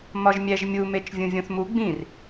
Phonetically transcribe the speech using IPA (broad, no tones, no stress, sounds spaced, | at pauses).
m ɒ ʒ mʲ æ ʒ mʲ u m e t͡ʃ vʲ ũ vʲ õ θ m u ɡ͡b ĩ r